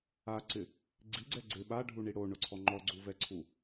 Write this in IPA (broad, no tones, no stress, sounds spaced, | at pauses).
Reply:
a ǀ ɪ | ɡ͡ǀ i ɡ͡ǀ ɛ ɡ͡ǀ ɪ ɓ a ɖʱ u ɳ i ɽ o ɳ ʊ ǀʰ ɔ ŋ͡ǃ ɔ ɡ͡ǀ u v ɛ ǀʰ u